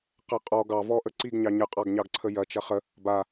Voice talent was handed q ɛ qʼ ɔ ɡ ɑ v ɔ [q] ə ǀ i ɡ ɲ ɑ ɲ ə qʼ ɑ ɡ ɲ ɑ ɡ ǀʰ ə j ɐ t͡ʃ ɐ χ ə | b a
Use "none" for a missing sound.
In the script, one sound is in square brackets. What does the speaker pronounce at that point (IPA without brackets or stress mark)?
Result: ʔ